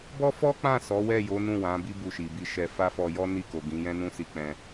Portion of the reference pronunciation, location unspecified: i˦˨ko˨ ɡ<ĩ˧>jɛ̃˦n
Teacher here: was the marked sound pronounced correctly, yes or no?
no